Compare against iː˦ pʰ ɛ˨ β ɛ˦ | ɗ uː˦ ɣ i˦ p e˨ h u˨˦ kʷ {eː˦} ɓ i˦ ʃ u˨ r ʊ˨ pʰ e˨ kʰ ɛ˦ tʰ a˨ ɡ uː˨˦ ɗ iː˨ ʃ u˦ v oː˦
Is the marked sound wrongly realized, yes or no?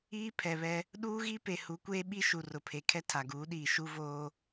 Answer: no